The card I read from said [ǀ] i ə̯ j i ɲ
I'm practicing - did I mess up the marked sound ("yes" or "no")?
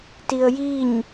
yes